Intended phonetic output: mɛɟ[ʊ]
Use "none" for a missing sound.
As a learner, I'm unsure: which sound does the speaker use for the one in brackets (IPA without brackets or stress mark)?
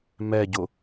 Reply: ʊ